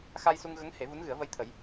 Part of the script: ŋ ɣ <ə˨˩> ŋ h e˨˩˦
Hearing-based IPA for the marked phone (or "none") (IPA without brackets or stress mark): ə˧˥